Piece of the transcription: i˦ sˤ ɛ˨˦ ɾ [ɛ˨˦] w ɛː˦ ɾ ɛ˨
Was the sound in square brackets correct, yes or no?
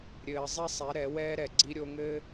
yes